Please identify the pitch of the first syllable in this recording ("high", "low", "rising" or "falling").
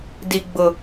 low